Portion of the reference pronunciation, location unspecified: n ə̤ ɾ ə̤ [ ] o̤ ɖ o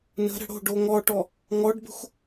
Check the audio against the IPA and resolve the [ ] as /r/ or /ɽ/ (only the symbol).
ɽ